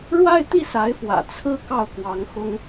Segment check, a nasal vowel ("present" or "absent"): absent